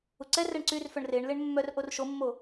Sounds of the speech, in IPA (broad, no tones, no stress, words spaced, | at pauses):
uǀɛrɛɳ ǀyrfœɳ reɳ leɳmːœrʔor ʃomːo